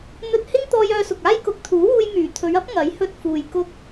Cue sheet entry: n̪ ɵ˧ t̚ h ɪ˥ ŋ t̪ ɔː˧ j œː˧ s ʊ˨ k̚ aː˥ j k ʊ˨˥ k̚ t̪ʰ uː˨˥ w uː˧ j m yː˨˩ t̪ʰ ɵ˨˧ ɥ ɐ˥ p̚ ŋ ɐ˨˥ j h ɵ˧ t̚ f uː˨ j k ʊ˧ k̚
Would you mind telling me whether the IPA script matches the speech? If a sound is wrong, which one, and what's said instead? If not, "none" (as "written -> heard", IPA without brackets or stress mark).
none